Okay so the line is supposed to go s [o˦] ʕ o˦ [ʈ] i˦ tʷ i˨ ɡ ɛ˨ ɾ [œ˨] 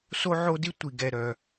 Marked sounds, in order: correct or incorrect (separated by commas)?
correct, incorrect, correct